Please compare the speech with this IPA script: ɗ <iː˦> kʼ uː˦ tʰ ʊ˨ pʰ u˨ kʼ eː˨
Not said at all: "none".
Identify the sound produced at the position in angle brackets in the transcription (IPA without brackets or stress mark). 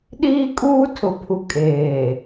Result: iː˦